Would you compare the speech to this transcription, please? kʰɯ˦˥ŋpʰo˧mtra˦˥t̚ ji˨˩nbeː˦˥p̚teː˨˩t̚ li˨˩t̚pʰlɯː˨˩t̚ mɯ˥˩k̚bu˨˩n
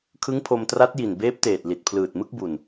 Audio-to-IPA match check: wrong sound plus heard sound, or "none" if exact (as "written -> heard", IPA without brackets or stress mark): none